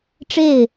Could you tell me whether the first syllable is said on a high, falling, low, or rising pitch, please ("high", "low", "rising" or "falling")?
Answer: falling